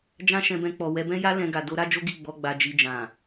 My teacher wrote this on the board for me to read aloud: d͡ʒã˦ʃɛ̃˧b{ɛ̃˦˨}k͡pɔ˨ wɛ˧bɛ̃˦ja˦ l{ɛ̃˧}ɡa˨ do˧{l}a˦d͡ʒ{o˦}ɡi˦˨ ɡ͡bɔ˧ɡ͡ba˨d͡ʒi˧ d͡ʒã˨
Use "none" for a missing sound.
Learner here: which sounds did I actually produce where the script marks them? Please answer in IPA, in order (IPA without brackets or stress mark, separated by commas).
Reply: ɛ̃˧, ɛ̃˧, ɾ, o˦